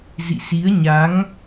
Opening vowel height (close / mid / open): close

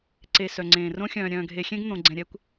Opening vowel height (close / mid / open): mid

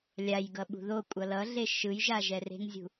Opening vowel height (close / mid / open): open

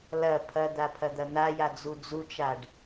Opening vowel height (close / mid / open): open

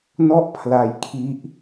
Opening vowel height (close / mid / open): mid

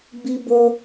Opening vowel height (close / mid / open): close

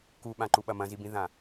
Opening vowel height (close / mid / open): close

